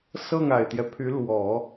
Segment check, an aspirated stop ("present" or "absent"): present